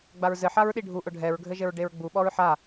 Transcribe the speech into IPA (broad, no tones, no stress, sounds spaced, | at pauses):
ɡ͡b a ɹ z ɘ ħ a ɹ ɗ i ɖʱ u ʔ ʊ ɖʱ ɛ ɹ ɡʱ ɘ ʒ ɘ ɹ ɖ e ɹ ɡ͡b u ɓ ɔ ɹ ħ a